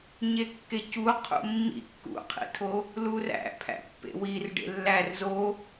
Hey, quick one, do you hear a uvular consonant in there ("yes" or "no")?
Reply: yes